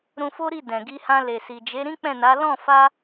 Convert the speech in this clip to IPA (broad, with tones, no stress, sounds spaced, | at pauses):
ɾ ũ˧ f o˦ ɾ i˦˨ d ɛ̃˨ ɡ i˧ h ã˧ l e˨ s i˨ d͡ʒ e˨˦ ɾ ĩ˦ k͡p ɛ̃˦˨ n a˨˦ l ɔ̃˦˨ f a˧